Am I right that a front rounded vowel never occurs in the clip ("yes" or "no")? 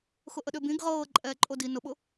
no